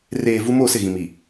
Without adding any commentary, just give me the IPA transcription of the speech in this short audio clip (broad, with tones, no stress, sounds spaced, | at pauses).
r eː˨ v u˦ m o˦˨ s ɪ˦˨ ɣ ĩ˨ m i˨